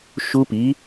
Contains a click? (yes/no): no